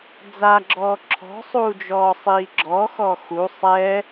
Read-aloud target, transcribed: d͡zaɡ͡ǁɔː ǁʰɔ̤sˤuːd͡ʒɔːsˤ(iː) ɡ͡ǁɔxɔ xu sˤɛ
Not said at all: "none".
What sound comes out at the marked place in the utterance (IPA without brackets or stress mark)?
iː